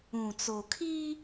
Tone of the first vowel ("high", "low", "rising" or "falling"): low